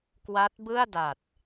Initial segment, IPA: k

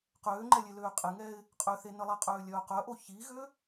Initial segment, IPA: q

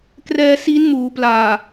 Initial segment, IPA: k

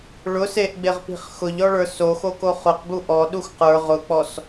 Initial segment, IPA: ɭ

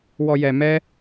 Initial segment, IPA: w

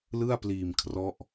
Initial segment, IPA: l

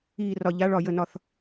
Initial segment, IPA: iː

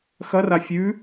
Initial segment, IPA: x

